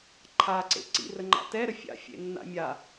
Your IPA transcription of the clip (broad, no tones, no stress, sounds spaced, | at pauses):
ǃʰ a ǀ ḛ ǀ ḭ r ə ŋ͡ǃ a̰ t ɛ ɾ ə fʲ a̰ fʲ ḛ nː a̰ mʲ a